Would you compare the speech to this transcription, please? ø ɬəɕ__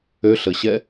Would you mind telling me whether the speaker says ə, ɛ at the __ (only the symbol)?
ɛ